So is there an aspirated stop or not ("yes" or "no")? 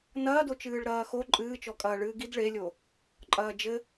no